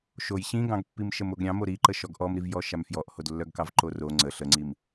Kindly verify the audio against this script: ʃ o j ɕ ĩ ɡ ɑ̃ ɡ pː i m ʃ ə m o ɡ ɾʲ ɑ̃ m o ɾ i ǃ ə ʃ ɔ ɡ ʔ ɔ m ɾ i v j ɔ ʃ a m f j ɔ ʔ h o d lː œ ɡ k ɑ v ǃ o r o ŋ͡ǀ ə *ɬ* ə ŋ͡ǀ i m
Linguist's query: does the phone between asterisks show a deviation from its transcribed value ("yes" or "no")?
no